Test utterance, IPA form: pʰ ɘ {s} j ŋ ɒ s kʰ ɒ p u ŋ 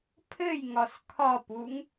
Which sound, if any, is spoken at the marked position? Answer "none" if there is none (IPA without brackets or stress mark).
none